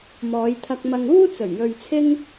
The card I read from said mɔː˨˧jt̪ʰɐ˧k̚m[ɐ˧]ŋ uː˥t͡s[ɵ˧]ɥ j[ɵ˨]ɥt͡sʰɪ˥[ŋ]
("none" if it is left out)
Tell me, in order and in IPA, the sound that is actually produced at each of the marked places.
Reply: ɐ˧, ɵ˨˩, ɵ˨, ŋ

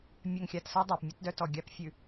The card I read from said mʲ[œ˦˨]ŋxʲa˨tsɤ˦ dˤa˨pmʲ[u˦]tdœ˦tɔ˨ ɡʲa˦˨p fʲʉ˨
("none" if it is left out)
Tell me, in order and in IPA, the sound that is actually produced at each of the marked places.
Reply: œ˨, u˦

